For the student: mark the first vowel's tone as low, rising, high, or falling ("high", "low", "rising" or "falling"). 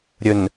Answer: low